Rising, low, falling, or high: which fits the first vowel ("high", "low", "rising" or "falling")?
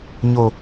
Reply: high